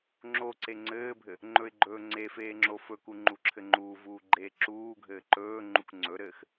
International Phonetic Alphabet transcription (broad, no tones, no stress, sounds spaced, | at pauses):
ŋ͡ǁ o ǀ e ŋ͡ǀ ɘː bʱ ɘ | ŋ͡ǃ ɵ ɪ̯ ɡ͡ǃ ɵː ŋ͡ǀ e f eː ŋ͡ǁ o f ɵ k u ŋ͡ǃ u ǁʰ ɘ ŋ͡ǃ uː v uː ɡ͡ǃ eː ǁ uː ɡʱ ɘː ǃ ɵː ŋ͡ǃ u k ŋ͡ǀ ɵ ɾ ɘː x